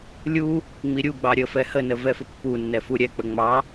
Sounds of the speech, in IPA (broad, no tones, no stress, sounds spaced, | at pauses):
lʲ u | ŋ͡m i ɾʲ u ɡ͡b ɑ ɾʲ ə f ɛ h ə n ə v ɛ f ə pː u nː ɛ f u ɾʲ ɛ k͡p ə ŋ͡m ɑ